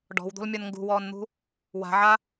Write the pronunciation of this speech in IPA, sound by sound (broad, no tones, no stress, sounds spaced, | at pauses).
ɖ ɔ̤ w d̪ o̤ l mʲ ɔ n ŋ ɡ ṳ w ɔː n n̪ ṳ | w a̤ ʕ a